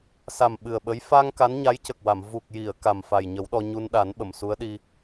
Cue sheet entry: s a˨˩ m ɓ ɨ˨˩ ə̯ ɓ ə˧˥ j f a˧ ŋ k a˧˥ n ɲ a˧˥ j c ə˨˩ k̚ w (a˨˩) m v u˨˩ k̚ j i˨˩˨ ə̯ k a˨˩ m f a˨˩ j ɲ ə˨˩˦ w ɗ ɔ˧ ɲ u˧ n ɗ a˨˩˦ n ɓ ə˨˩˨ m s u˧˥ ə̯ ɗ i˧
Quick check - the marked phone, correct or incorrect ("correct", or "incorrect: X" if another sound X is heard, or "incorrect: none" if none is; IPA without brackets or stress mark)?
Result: incorrect: a˨˩˨